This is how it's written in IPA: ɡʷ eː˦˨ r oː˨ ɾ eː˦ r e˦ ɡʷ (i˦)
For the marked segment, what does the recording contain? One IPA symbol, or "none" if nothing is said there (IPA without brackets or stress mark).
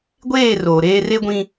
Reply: ĩ˦